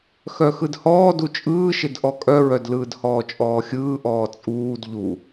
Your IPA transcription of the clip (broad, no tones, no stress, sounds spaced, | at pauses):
x œ x ɯ d h ɔː d u t͡ʃʼ ɯː ʃ ɪ d ʔ ɔ kʼ œ ɹ œ d l ɯː d h ɔː t͡ʃʼ ɔː xʲ ɯː ʔ ɔː t͡sʼ uː d ʎ u